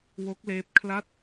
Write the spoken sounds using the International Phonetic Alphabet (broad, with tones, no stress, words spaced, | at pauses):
wo˦˥k̚leː˦˥p̚ kʰla˥˩t̚